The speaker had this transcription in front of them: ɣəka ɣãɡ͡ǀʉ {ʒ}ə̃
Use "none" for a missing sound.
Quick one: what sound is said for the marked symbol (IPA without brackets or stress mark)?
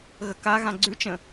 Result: t͡ʃ